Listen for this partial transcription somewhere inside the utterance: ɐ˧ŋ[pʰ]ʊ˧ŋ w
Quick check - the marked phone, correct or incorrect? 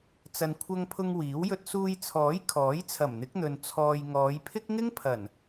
correct